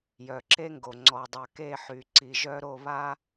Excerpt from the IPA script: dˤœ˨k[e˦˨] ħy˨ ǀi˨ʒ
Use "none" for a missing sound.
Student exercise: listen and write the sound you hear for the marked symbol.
e˦˨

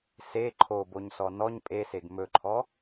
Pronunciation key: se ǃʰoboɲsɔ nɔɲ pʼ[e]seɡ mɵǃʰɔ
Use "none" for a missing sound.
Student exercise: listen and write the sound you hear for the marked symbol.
e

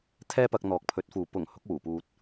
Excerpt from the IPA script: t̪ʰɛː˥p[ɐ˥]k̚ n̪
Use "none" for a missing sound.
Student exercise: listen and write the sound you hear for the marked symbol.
ɐ˧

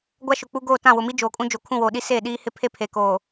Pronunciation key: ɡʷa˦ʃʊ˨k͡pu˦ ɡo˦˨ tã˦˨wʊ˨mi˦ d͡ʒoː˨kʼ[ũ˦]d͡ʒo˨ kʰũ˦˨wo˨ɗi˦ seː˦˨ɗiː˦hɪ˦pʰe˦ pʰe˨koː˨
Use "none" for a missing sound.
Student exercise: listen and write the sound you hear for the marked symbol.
ũ˦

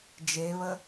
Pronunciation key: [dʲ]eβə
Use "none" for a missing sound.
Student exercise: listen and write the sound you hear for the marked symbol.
d͡ʒ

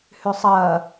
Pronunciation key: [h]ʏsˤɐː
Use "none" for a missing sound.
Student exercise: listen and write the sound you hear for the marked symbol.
h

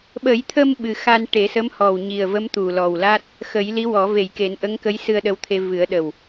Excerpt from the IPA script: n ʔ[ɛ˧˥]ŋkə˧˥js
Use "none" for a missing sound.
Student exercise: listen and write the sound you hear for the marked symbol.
ə˧˥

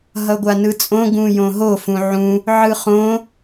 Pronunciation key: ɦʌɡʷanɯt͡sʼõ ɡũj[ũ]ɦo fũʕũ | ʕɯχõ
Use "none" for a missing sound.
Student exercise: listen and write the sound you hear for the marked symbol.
õ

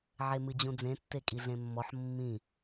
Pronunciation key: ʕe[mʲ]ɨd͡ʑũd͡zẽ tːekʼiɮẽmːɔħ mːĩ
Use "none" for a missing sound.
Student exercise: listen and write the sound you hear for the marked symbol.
m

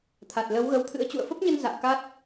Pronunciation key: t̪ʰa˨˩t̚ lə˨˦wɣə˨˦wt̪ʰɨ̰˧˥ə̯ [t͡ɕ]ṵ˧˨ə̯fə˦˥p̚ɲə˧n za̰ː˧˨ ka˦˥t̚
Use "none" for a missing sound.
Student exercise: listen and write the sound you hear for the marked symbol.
t͡ɕ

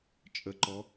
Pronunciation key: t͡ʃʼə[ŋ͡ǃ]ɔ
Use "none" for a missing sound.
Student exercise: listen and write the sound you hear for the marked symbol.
ǃ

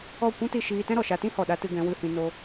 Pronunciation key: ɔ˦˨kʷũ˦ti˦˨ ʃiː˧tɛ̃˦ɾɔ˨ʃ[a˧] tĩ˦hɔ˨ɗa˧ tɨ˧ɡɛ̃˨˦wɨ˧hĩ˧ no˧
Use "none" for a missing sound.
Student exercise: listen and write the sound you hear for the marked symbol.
a˧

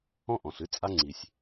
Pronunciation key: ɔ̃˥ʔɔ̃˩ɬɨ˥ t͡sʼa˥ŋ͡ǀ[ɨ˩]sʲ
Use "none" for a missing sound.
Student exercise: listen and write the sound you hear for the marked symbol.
i˩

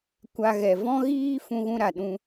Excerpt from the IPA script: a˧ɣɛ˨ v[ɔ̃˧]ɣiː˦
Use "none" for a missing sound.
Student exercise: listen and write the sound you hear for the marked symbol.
ɔ̃˦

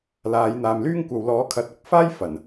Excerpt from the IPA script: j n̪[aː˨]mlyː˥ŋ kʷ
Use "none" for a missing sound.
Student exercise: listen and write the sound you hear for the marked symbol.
aː˨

